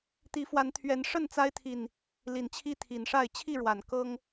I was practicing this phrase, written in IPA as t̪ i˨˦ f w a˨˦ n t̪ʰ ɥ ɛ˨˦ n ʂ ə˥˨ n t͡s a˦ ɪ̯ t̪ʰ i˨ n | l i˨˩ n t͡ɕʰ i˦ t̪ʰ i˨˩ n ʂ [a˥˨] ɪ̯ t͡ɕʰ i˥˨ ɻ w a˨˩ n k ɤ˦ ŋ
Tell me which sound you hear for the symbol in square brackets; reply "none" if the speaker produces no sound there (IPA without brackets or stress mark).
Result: a˥˨